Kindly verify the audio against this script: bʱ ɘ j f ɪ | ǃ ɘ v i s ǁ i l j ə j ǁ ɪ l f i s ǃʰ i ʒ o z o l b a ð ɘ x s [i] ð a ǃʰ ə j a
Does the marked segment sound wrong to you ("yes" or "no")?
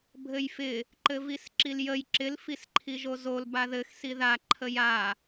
no